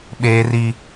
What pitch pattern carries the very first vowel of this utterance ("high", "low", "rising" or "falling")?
high